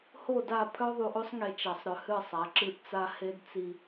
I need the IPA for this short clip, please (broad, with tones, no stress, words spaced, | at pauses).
ho˦˨da˦˨ pʰœ˦ ðˤu˨ʔo˦sˤŋe˨ t͡ʃa˨sˤ ɾœ˨hɨ˦˨sˤa˨˦ǁɨ˦˨ʔ t͡sa˦he˦dt͡si˦